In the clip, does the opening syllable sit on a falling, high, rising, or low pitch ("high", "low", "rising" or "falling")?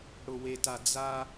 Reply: low